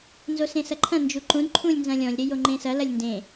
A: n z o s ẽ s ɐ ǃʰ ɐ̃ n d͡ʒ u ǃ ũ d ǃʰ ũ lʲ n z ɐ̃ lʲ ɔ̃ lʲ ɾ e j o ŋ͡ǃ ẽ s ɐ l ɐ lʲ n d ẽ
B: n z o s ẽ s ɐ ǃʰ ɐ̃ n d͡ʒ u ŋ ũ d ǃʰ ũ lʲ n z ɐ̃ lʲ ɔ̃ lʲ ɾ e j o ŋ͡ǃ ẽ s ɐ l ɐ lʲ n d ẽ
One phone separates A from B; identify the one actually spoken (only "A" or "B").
A